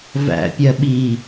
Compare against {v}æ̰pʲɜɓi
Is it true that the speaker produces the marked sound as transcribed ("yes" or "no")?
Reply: yes